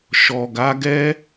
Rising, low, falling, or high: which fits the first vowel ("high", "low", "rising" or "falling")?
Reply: low